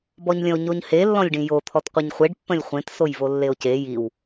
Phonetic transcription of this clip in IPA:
b ɔ ɲ lʲ ə̃ o̯ ɲ o ɲ h e lː ɔ̃ lʲ ɖ ĩ j o t̪ʰ ɔ t qʷ e ɲ χʷ e ɖ pː ə̃ lʲ χʷ ẽ t s o j v o lː e o̯ c e j i w

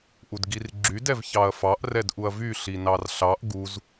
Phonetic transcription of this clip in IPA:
ʔ u d ɡ i r ɡ͡ǁ y d ɛ v ç ɑ ɐ̯ f ɑ ʔ r ɛ d ʔ u ɐ̯ v y ɬ i n ɑ r ɬ ɑ ʔ ɡ u z

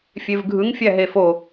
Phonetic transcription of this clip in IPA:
fʲ e v ɡʱ ɯ ŋ fʲ æ ɦ e f o

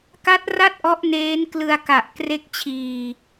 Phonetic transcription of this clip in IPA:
k a˦˥ t̚ r a˥˩ t̚ ʔ ɔ˦˥ ʔ n eː˦˥ n k l ɯ˧ a̯ k a˨˩ ʔ k r e˥˩ k̚ t͡ɕʰ iː˧

